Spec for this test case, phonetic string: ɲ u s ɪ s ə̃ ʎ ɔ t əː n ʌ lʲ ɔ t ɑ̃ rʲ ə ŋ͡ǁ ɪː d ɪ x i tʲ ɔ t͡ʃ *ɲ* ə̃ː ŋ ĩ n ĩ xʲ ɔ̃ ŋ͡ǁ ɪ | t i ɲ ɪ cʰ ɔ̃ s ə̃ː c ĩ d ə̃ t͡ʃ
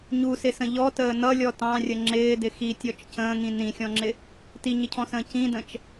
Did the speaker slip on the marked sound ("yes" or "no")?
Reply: yes